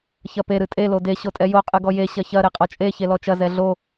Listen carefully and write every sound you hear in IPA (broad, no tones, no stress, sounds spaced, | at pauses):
ç ɐ p e ɾ ɨ tʼ e l o d e ɕ o tʼ ɛ j o qʼ ɨ ɡ ɔ j e ɕ ɐ ç ɐ ɾ e qʼ ɔ t͡ʃʼ e ç e l ɔ t͡ʃ ɐ z ɛ ɮ o